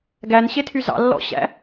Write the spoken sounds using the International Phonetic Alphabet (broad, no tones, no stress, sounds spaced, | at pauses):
ɡ æ n ɕ e tʰ y z ɑ̰ lː ɔ̰ ɕ æ̰